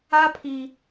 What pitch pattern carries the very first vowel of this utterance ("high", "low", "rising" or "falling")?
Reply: high